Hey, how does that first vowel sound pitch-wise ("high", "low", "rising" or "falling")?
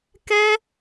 high